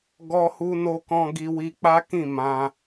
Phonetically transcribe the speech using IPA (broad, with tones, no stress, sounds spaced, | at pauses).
ɡ ɔ˧ h u˧ n o˧ k ɔ̃˧ ɡ i˧ w i˧ k͡p a˦ k ĩ˦˨ m ã˧